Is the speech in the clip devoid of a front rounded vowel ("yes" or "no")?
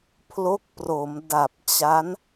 yes